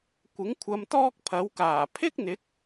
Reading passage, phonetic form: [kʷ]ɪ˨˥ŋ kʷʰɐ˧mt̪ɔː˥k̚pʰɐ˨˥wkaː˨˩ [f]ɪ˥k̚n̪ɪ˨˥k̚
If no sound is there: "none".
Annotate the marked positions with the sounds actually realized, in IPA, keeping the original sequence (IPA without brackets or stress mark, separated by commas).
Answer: kʷ, pʰ